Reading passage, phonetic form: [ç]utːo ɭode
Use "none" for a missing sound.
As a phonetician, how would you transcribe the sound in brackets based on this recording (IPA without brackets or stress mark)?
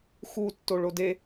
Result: x